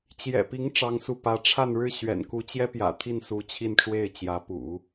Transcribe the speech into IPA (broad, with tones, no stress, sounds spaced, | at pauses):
t͡ɕ j ɛ̰˨˩ p i˧˥ ŋ ʈ͡ʂ ɑ˥ ŋ s u˥˩ p ä˧˥ ʈ͡ʂʰ a˥˧ n ɻ ɻ̩˥˩ ɕ ɥ ɛ̰˨˩ n k u˧˥ t͡ɕ j ɛ˥ p j ä̰˨˩ t̪ʰ i˥˩ n s u˧˥ t͡ɕʰ i˥˧ n ʈ͡ʂ w e˥˩ ɪ̯ t͡ɕ j ä˧˥ p ṵ˨˩˦